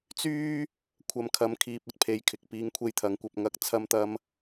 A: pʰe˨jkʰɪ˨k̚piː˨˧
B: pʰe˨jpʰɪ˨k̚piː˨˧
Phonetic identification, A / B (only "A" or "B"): A